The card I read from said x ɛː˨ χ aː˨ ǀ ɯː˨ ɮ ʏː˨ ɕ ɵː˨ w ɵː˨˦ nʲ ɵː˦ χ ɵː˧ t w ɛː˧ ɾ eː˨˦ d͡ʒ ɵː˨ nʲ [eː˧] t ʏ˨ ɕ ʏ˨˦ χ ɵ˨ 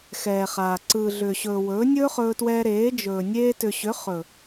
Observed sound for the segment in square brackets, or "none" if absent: eː˧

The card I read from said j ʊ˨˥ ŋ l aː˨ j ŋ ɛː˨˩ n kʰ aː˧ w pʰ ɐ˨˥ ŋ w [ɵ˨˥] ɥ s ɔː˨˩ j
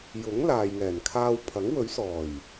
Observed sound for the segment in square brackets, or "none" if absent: ɵ˨˥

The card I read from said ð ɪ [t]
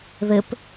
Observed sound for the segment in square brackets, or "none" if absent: p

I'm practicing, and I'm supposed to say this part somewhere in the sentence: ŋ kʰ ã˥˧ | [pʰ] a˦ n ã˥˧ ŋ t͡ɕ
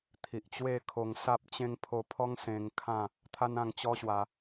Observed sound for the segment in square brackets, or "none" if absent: t̪ʰ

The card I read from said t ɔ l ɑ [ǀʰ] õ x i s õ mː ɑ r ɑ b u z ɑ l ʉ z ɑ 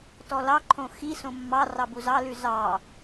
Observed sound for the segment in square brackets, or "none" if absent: ǃʰ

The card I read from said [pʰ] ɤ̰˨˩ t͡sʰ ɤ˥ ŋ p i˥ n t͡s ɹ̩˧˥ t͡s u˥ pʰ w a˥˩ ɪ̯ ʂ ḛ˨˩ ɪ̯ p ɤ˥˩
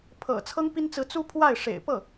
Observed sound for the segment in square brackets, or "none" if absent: pʰ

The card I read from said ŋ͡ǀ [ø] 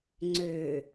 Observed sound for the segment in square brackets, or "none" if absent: ø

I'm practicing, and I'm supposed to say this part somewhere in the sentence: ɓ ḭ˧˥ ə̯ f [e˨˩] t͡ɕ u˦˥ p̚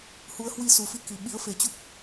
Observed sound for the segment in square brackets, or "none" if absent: e˨˩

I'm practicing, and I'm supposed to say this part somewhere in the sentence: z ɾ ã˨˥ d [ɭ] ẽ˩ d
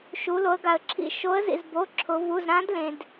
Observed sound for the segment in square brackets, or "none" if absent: l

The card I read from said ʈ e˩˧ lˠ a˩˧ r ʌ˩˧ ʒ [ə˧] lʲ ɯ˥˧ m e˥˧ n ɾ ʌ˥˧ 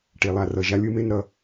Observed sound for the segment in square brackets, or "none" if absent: a˧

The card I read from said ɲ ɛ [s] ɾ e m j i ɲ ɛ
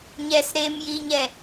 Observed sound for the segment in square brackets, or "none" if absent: s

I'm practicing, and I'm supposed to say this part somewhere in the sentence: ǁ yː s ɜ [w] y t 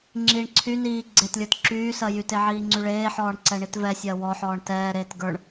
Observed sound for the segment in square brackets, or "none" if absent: j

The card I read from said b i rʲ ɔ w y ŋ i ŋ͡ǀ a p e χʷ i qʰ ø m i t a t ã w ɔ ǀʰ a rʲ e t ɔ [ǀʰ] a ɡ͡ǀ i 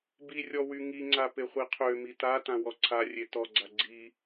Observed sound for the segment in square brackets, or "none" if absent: ɡ͡ǀ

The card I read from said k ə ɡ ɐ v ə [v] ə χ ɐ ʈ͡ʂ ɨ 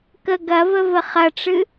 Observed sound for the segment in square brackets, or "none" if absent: v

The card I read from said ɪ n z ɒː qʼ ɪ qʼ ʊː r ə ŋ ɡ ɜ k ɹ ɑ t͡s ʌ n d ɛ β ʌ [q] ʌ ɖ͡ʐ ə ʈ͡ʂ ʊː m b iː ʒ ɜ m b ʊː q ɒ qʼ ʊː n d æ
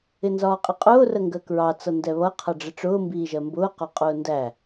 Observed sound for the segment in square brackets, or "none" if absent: qʰ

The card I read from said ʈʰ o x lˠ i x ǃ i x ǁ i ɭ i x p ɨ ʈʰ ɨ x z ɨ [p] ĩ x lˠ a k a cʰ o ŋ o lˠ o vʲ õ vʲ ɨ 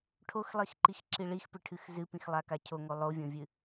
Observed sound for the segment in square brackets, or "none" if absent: p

